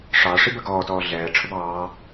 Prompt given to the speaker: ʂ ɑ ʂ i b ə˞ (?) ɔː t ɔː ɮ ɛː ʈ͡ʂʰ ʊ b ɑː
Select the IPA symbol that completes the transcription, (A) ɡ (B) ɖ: A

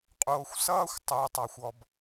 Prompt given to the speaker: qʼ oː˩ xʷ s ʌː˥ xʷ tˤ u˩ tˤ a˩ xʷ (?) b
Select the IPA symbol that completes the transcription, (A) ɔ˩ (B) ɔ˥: A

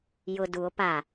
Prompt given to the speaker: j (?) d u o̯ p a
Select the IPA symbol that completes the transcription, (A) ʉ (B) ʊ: B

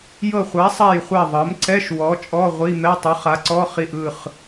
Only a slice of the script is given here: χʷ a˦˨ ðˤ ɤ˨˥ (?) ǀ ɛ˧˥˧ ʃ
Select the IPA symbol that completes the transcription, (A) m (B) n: A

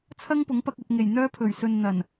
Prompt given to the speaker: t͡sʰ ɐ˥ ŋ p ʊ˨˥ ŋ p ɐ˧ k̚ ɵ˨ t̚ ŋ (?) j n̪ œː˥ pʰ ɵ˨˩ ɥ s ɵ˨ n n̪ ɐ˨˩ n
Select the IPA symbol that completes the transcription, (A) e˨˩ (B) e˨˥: A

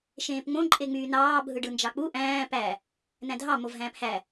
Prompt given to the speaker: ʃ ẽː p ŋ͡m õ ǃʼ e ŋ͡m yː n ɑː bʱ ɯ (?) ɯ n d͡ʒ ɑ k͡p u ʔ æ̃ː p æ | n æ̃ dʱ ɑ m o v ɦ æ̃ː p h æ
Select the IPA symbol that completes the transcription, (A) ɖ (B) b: A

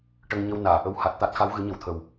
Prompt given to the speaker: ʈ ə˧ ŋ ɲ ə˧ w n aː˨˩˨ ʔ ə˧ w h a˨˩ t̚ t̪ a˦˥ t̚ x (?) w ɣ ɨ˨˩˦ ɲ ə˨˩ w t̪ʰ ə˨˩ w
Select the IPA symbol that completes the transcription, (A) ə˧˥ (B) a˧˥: B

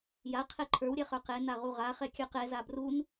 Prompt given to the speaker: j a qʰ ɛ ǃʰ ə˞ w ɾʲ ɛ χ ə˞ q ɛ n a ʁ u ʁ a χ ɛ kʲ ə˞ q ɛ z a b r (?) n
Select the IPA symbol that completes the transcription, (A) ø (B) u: B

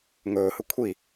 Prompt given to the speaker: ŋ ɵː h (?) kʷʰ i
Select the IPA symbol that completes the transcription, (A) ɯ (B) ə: A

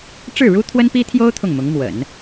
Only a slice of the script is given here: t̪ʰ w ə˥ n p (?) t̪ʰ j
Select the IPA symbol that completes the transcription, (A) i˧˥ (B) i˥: B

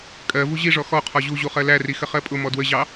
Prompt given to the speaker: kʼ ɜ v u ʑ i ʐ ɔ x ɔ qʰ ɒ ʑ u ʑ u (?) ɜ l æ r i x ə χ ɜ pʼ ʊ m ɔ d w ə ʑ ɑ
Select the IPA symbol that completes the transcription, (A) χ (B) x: A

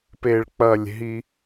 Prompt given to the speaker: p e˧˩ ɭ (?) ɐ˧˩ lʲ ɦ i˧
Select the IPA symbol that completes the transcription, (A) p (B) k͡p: B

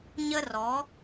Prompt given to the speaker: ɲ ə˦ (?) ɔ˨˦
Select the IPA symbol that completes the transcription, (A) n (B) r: B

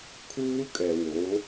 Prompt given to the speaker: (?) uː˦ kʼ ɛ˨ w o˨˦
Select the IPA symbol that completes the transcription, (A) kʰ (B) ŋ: A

